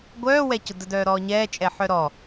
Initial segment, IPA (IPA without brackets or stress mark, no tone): ɡʷ